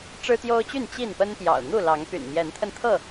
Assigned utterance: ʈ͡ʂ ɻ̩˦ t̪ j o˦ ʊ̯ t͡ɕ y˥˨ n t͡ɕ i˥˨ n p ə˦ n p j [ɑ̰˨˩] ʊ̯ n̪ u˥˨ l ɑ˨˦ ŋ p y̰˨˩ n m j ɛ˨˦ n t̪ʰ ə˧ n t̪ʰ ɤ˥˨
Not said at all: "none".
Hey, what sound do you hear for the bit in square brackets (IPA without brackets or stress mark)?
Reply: ɑ̰˨˩